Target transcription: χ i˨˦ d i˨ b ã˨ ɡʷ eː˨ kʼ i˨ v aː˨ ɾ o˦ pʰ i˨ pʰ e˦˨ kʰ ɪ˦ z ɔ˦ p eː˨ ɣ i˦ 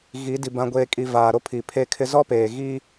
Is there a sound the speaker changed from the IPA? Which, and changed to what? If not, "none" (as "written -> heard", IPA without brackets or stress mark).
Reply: χ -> ɣ